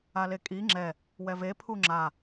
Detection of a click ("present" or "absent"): present